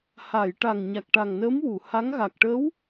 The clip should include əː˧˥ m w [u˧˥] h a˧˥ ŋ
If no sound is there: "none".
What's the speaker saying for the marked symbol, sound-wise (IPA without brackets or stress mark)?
u˨˩˨